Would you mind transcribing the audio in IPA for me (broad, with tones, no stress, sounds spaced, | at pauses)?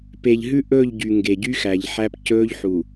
p e˨ ʎ ɦ ʉ˦ ʔ ɵː˦˨ ʎ ɟ y˨ ŋ ɡ e˨ ɟ y˦ x æ˨ ʎ ħ æ˦ p c ɵː˦ ʎ ħ u˨